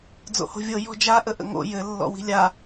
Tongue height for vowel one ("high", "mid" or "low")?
mid